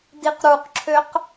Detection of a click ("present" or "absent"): present